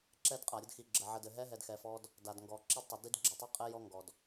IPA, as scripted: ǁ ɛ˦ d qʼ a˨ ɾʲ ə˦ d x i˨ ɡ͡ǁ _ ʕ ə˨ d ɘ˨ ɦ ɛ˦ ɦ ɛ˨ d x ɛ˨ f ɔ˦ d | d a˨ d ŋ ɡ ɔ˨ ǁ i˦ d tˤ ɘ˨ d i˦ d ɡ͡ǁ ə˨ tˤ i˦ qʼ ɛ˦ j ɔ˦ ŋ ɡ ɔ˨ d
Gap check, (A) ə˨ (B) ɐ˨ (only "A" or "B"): A